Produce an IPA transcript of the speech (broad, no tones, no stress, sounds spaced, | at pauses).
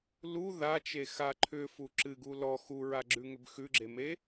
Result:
l u ð a t͡ʃ e x a ǃʰ ʏ f u ǁ ɨ ɡ u l ɔ x u ɹ a ɡ͡ǁ ʉ ŋ ʏ b x ʉ ɡ͡ǁ e m e